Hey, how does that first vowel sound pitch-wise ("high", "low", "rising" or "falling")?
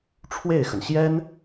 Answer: falling